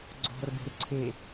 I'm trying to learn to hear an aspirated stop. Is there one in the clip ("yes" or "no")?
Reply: yes